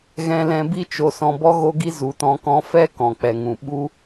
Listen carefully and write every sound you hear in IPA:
ɣɛ̃˧lɛ̃˧bi˦ t͡ʃo˧sɔ̃˧ bɔ˦ɣo˦ɡi˦ zu˨tɔ̃˧kɔ̃˧fɛ˦ kɔ̃˨k͡pɛ˨ŋũ˨ ɓu˦

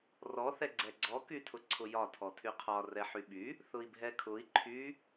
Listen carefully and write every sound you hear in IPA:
rɔ θɛɡ͡ǀɛɡ͡ǀɔ kytʰʊǀʰʊjɒ tʰɔtʰyqʰɒ rɛħyɓy | θʊi̯bʱɛkʰʊi̯ ǃʰy

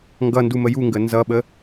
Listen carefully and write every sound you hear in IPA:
ŋɡʌndu məjuŋɡə nzʌɓə

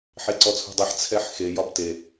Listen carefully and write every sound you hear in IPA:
ħeǀɔt͡sʰṳdˤiħ t͡sʰɛħxe jɒbte

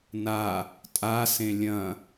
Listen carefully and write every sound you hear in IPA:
na | tʼa sẽlʲɐ̃

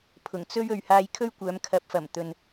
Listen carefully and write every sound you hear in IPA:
pʰʊ˨˩ŋt͡sɵ˥ɥ ɵ˨ɥhaː˧j kʰɵ˥ɥkʷœː˨˧m kʰɐ˨˥p̚fɐ˨˩m t̪ɵ˨n

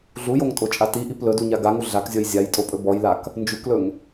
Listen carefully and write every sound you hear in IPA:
ɮujoŋtʼot͡ʃʼa tiʔip lɵduɲa ɡaŋu ɮakzʲɔj zʲajtʼopʼɵ bɔjlak | nd͡ʒuklɵŋ

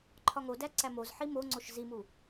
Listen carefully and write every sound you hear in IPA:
ǃʰɒŋo dæǀæmoz ħimoŋ͡ǀoʃ zimu

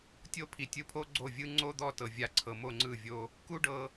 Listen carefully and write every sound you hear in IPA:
tʲo˦pʰi˨tʲɯ˧pʰo˦ ɡ͡ǀo˦˨vʲɯ˦ ŋ͡ǀo˦d̪ɔ˦˨ tɤ˨vʲa˧ǀʰɤ˨ mo˦˨ ŋ͡ǀɯ˦˨vʲo˧ | ku˦ɖɤ˧

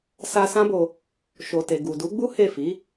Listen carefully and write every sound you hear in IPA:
sa˧sã˦bo˧ | ʃo˨te˨ ɡu˨du˨˦ɡ͡bu˦ he˦˨fi˨˦

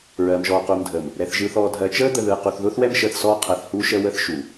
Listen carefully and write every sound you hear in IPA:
ɹɜː˨mʒɔː˨quː˨mdʱəː˨m | ɾɛ˨θʒɯː˨θ ɔː˨dʱɜ˨ t͡ʃəː˦d̪ə˨ðɯː˨ qu˨θðʊː˦θwɛ˦m ʃəː˨θsɔː˦ qʰɜ˨θhuː˦ʃəː˦wəː˦θ ʃu˨

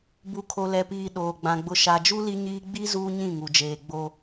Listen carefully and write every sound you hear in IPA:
bu˨kʰo˨lɛ˨piː˨ ɗoː˨ɡ͡bã˨ ɡ͡bʊ˨ʃa˨d͡ʒu˦ li˦ɲiː˦ ɡ͡bi˦ zuː˦ɲĩ˦˨ŋu˨d͡ʒeː˨ ɡ͡bo˦

